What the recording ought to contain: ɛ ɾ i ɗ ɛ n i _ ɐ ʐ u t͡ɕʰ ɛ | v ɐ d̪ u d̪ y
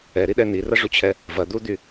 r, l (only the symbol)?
r